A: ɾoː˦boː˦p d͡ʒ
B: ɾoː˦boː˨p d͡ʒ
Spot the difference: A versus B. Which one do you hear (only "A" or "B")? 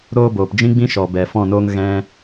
B